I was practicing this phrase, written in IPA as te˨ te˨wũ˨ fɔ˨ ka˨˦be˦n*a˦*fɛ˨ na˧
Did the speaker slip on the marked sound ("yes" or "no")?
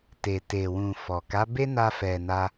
yes